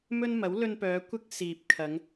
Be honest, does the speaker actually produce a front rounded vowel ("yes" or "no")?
yes